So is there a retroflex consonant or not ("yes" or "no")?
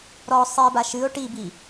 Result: yes